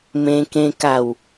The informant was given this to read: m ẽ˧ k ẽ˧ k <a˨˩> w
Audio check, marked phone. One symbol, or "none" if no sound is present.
a˨˩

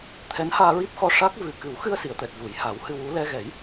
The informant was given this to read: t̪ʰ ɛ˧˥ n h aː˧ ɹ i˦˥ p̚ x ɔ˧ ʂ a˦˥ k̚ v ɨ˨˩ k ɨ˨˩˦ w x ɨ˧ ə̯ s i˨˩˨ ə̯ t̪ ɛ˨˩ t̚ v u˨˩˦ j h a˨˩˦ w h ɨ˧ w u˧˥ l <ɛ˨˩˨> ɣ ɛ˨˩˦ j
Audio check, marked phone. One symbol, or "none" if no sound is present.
ɛ˧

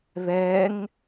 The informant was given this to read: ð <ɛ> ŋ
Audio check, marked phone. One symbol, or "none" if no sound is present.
ɛ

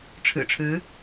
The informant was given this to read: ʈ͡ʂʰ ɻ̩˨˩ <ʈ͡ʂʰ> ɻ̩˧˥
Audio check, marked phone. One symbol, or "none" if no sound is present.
ʈ͡ʂʰ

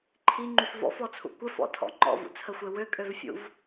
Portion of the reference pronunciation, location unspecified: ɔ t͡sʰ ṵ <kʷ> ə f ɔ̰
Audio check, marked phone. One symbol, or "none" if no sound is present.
kʷ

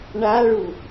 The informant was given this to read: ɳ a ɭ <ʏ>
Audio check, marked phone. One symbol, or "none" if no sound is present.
u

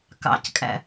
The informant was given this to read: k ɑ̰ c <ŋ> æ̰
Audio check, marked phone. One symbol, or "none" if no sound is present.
kʼ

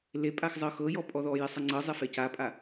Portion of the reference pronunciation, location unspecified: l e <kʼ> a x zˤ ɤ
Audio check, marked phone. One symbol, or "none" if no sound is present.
pʼ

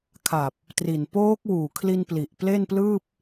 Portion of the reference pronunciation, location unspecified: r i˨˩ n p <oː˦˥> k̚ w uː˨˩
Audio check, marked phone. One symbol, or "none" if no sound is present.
oː˦˥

